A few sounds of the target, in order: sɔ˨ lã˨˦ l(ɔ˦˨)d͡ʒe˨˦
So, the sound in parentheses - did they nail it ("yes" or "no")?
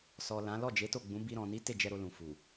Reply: yes